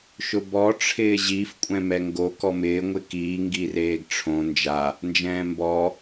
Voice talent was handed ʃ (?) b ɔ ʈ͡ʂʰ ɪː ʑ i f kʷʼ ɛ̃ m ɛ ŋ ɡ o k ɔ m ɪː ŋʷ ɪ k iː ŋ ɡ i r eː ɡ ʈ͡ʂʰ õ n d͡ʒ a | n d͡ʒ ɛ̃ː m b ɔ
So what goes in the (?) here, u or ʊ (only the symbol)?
ʊ